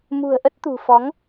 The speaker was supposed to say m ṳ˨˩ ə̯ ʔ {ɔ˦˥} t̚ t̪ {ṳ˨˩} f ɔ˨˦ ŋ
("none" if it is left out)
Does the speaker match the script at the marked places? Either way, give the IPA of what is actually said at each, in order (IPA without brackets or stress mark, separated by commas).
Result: ə˦˥, ṳ˨˩